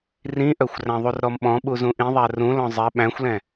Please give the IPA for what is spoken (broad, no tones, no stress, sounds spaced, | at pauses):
r ĩ ʔ œ xʷ r æ̃ ðˤ u r ɾ ɔ m ɓ ɔ̃ ɓ u z ũ ʔ ĩ ðˤ æ r ũ l ɔ̃ zˤ ɛ ɓ æ̃ xʷ l ɛ̃